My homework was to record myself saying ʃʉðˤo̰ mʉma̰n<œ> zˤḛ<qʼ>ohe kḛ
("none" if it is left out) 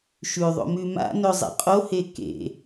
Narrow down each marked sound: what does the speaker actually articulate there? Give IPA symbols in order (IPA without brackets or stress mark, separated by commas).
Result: ɵ, qʼ